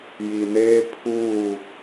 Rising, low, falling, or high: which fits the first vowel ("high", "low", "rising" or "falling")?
low